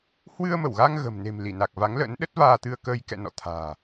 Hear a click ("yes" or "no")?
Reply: no